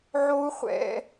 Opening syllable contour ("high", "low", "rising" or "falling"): high